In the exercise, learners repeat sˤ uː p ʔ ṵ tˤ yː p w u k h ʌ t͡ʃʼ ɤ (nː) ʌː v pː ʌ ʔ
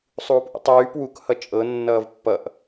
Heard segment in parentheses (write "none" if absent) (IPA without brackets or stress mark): nː